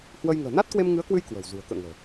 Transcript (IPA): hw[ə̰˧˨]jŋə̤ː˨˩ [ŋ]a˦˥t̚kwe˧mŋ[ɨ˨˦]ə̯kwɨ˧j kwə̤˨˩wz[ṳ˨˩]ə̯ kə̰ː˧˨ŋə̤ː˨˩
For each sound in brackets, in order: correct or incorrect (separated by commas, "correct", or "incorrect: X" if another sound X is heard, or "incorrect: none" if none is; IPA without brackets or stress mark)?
incorrect: ə˧, incorrect: n, correct, correct